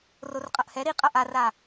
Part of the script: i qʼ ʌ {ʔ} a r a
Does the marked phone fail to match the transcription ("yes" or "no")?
no